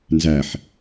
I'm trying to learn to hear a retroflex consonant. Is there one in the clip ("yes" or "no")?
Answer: no